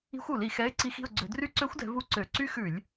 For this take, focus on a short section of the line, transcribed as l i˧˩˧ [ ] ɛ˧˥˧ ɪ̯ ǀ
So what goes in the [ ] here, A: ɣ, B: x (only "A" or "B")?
B